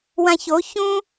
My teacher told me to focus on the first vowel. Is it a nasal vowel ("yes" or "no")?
yes